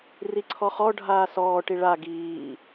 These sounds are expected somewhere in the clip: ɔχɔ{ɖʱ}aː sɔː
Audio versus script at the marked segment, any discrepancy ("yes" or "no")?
no